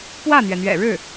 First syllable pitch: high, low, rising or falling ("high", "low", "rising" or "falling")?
falling